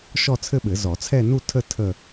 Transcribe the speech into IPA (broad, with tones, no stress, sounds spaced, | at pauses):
ʃ ɔ˥˧ t͡sʰ ɘ˥˧ ɓ ɘ˨˩˦ z ɔ˨˩˦ t͡sʰ ɛ˥˧ n u˥˧ tʰ ə˥˧ tʰ ə˥˧